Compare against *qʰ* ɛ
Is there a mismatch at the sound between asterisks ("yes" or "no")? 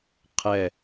no